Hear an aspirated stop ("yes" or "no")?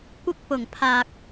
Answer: yes